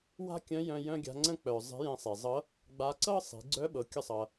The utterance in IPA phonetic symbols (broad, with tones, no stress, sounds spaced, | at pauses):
w a̤˥ kʲ œ̃˧˥ j œ̃˧ j œ̃˥ ɡʲ a̤˧˥ ŋ͡ǀ ə̃˥ k͡p œ˩ zˤ e̤˧˥ j ẽ˧ sˤ e˩ zˤ ɤ˧˥ | ɡ͡b a˧˥ ǀ ɤ˥ sˤ i̤˩˧ ɡ͡ǀ œ˧˥ ɓ ɤ˩ kʲ ə˧ sˤ ʌ˩